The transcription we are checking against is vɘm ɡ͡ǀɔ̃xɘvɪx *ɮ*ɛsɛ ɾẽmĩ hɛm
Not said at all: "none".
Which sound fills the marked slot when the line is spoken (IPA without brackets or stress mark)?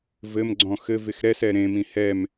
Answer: ɾ